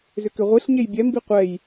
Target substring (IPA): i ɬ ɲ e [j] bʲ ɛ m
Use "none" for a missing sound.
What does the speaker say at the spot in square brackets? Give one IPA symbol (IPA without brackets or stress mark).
j